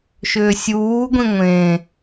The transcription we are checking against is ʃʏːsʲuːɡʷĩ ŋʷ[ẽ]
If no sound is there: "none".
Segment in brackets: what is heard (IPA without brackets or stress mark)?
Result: ẽ